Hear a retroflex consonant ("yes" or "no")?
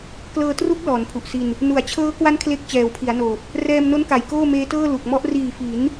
no